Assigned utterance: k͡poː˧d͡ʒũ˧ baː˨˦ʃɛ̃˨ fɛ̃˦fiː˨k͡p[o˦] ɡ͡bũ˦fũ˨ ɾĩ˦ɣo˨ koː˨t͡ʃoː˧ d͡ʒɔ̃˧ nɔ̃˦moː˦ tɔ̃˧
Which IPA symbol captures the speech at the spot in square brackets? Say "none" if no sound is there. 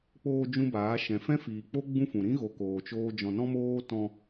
o˦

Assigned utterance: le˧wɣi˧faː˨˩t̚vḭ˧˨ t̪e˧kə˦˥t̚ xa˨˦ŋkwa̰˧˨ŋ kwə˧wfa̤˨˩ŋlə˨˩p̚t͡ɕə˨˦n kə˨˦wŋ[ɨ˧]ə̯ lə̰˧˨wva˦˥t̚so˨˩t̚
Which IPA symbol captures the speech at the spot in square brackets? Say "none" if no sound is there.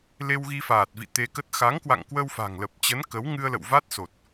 ɨ˧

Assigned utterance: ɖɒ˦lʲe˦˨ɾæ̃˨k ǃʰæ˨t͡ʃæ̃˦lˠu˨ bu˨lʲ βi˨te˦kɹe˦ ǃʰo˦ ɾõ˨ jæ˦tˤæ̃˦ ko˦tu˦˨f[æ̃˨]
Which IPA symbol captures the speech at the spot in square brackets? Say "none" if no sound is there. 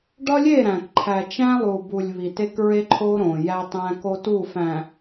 æ̃˨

